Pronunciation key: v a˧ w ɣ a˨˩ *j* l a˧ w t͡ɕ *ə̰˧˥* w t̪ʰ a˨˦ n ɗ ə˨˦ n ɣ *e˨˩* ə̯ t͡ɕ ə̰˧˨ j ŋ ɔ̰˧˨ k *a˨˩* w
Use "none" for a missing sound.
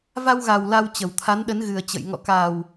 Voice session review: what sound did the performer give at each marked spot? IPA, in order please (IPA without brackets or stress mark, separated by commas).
w, ə˨˩, ɨ˨˩, a˨˩